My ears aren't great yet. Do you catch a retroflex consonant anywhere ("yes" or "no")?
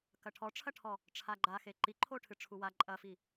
yes